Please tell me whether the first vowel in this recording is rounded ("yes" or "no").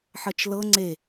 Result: no